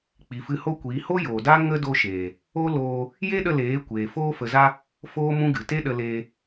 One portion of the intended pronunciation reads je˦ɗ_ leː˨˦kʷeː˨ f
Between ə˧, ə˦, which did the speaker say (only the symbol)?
ə˧